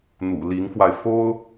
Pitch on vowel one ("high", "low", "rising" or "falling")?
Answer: low